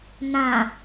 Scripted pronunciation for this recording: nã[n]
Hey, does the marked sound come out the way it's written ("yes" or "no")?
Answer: no